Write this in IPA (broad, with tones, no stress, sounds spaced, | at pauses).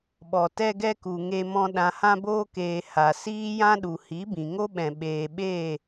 ɓ ɔ˨ t ɛ˧ ɡ ɛ˧ k u˨ ŋ e˧ m ɔ̃˧ ɗ ã˨ h ã˧ b oː˧ k eː˨ h a˨ s iː˦ j ã˦ ɗ u˨ h i˨˦ b ĩ˨ ŋ o˦ ɓ ɛ̃˨ ɓ eː˨ ɓ eː˦˨